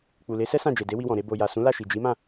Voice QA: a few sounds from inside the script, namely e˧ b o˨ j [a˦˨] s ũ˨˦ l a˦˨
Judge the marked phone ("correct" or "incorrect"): incorrect